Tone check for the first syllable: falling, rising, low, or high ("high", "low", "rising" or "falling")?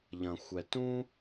low